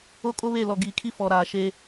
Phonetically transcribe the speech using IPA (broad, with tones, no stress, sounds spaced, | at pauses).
o˦ kʼ o˦ β e˦˨ l ɔ˨ ɡ iː˨ kʰ i˦ f ɔ˨ ɾ aː˨ ʃ eː˦